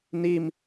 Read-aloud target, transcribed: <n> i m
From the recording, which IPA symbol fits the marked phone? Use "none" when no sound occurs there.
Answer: n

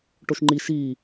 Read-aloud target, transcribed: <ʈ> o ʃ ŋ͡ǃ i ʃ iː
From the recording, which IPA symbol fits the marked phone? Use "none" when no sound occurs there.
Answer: ʈ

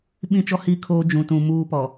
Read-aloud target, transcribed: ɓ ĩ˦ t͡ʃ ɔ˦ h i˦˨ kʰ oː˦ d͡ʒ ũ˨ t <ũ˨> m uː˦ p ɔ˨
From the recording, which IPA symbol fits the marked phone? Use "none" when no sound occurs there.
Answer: ũ˨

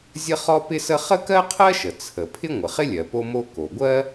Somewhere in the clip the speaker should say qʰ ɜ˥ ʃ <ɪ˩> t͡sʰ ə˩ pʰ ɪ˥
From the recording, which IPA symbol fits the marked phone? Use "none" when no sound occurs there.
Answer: ə˩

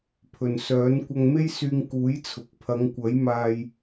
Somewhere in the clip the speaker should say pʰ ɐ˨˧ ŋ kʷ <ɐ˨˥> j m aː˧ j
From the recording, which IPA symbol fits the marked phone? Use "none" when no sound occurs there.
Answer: ɐ˨˥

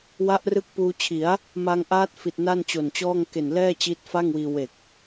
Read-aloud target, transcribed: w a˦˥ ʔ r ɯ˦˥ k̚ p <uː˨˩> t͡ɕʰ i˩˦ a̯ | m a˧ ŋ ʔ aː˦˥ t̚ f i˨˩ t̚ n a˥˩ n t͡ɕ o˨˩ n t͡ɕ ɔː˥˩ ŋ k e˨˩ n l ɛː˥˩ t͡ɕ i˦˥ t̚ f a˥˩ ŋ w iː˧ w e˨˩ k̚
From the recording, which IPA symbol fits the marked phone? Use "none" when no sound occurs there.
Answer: uː˧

